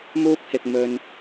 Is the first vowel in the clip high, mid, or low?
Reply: high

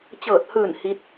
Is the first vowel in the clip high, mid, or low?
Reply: mid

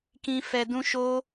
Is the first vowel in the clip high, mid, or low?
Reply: high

